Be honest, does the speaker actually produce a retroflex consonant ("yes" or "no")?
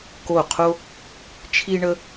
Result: yes